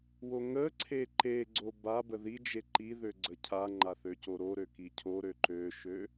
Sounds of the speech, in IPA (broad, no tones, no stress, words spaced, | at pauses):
woŋəǀʰe ǃeɡ͡ǀo babə ðid͡ʒe ǃiðø ɡ͡ǀəcʰaŋ͡ǃa θøcoɾoɾø kicʰoɾø ǃøʃø